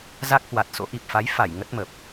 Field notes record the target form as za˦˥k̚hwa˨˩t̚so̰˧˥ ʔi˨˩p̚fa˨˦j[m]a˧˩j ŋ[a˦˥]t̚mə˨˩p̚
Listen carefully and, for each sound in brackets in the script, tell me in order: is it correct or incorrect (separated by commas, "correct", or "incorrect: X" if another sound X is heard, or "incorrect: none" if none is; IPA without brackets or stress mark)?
incorrect: f, incorrect: ə˦˥